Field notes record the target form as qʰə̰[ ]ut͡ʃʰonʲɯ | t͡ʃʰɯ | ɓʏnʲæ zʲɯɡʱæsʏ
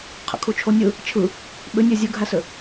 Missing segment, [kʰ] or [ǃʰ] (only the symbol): kʰ